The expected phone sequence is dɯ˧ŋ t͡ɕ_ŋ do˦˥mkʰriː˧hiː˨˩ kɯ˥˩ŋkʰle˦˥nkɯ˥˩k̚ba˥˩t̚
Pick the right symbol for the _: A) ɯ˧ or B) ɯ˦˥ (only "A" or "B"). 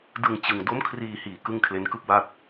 A